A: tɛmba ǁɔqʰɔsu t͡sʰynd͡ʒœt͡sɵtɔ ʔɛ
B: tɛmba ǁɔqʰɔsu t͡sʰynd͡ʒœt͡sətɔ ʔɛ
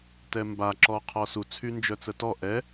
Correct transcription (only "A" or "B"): B